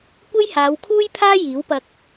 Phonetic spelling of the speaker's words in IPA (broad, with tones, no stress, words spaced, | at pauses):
kʷe˥jhaː˨˧wkʰuː˥jpʰaː˥ jiː˨˥wpɐ˧k̚